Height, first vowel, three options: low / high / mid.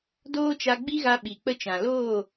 mid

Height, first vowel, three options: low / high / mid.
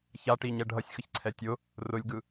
low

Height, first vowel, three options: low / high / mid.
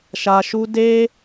low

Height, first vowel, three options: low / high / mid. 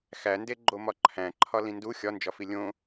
low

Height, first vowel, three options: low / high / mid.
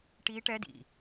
high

